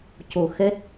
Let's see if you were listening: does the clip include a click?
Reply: no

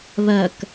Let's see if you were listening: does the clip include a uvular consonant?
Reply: no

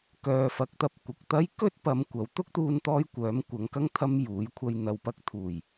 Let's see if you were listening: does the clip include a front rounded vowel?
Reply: yes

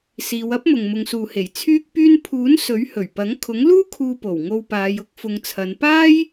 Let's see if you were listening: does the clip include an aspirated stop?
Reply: yes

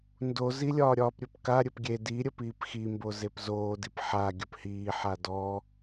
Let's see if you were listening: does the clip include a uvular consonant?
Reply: no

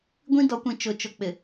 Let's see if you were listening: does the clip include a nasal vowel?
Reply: yes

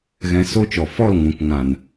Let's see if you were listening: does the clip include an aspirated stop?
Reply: no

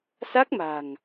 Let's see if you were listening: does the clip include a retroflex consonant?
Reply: no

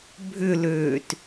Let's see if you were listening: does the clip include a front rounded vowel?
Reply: yes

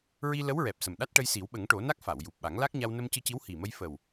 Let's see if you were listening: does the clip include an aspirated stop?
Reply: no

